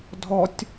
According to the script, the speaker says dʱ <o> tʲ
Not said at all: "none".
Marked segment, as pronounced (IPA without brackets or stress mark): ɔ